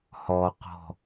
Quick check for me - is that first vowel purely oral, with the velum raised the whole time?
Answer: yes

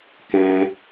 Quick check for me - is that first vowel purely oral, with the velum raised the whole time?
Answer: no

